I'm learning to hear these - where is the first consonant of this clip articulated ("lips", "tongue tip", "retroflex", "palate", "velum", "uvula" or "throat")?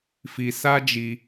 lips